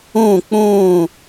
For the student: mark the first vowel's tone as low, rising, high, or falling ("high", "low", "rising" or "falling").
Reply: falling